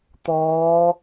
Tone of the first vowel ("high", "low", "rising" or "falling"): rising